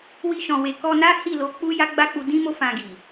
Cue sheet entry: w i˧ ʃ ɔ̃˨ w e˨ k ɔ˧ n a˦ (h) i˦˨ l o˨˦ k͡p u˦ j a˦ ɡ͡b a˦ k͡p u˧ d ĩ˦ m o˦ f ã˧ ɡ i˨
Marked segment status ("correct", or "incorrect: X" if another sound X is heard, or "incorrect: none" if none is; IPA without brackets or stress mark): correct